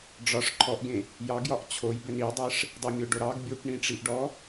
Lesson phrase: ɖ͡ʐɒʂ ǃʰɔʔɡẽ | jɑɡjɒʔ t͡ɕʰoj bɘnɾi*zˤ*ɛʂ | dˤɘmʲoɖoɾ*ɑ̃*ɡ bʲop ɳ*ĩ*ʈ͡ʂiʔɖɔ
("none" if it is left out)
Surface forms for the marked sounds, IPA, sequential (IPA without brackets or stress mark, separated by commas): dˤ, ɑ, ĩ